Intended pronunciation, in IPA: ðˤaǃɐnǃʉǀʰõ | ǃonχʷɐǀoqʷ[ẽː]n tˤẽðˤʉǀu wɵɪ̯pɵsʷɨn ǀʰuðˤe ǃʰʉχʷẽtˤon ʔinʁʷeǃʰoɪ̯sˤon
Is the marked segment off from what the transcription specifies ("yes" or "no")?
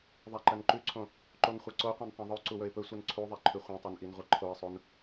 yes